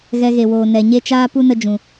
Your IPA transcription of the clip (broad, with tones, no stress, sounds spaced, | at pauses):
ɣ ɛ˧ ɣ e˨ w oː˨ n ɛ˨ ɲ e˦ t͡ʃ aː˦ p u˦ n ə˧ d͡ʒ ũ˨